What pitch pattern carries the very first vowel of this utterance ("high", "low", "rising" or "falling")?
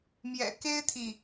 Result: low